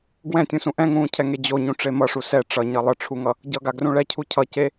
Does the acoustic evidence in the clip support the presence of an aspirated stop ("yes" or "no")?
yes